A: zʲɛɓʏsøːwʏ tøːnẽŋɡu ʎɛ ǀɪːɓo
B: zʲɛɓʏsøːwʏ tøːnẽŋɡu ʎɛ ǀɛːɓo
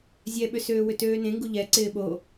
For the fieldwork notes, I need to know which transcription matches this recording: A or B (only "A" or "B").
A